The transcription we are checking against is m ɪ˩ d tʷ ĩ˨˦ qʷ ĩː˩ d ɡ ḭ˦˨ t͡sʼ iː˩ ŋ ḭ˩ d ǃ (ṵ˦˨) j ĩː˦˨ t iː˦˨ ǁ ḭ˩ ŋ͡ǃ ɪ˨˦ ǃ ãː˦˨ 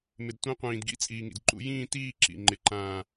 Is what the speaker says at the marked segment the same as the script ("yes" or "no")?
yes